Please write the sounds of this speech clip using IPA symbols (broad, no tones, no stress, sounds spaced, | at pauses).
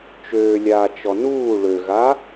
t͡ʃ øː lʲ aː t͡ʃ ɔ n uː ɭ ø ɣ a